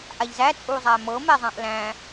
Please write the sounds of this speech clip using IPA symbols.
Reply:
ʔaʎzæ t͡sʼuzˤæmɤ mɛzˤãʔlæ̃

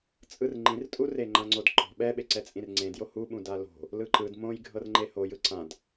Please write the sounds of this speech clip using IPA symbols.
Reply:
t͡sʼɯrŋ͡ǃĩrtʼu reŋ͡ǃãŋ͡ǀodǃɔ̤ ɓɛɓeǀɛ t͡sʼĩrŋ͡ǀẽdjo huɓũ dalo̤ | lɯǃɯd mõj ɡʱɤrŋ͡ǃehojɯ ǀãd

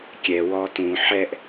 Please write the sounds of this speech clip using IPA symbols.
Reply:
kʲɛ wɔtũ ħɛʔ

